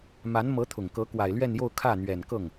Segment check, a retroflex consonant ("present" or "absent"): absent